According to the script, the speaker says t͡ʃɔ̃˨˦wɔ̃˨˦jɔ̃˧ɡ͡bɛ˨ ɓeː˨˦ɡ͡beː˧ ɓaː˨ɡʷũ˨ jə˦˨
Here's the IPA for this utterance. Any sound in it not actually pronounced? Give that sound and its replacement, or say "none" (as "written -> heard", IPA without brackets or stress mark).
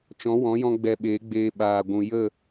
none